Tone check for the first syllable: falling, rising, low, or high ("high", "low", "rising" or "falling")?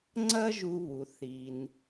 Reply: high